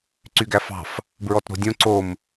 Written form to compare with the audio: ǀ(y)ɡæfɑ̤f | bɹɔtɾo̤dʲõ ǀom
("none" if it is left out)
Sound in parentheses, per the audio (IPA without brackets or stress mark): y